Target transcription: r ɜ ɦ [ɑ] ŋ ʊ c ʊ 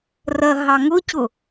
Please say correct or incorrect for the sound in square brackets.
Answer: correct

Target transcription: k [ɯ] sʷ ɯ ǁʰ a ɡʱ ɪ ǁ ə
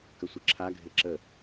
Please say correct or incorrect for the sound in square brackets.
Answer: incorrect: ə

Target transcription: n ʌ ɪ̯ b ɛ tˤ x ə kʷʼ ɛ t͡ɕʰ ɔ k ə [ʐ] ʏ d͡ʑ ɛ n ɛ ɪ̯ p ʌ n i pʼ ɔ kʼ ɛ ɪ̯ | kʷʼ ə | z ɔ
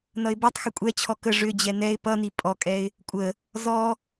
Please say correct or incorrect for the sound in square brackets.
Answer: correct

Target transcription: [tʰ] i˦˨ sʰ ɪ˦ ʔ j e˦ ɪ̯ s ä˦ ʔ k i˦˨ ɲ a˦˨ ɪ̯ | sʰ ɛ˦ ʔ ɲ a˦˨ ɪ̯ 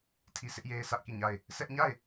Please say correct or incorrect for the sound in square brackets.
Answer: correct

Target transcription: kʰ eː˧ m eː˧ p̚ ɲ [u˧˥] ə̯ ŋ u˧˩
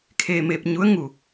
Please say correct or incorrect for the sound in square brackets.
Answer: correct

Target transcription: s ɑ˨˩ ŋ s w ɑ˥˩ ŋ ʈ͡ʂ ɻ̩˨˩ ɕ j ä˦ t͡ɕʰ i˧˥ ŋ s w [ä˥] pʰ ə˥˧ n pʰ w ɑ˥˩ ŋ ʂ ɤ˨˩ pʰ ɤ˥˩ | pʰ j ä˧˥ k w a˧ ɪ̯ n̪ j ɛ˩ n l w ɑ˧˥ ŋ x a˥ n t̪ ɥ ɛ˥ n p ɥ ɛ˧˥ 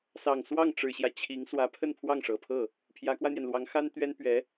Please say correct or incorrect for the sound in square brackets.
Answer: incorrect: ä˧˥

